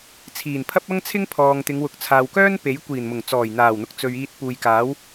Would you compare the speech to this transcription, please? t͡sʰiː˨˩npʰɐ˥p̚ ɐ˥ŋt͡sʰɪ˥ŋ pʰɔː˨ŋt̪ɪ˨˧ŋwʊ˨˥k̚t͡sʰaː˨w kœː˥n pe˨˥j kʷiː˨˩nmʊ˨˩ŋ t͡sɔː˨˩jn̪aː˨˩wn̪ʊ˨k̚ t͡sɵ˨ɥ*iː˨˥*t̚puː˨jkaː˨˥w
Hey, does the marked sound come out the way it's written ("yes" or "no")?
no